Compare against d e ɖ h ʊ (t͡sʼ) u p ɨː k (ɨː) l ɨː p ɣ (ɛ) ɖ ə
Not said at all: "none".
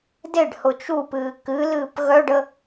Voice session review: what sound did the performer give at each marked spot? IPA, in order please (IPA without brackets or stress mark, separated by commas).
t͡ʃ, ɨ, œ